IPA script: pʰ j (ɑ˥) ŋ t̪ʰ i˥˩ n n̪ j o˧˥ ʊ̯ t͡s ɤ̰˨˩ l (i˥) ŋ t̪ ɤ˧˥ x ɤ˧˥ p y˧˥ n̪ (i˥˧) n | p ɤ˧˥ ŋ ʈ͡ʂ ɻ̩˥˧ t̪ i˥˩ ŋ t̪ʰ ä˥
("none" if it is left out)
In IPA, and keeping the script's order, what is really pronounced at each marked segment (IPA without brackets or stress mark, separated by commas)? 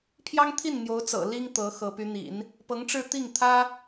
ɑ˥, i˥, ḭ˨˩˦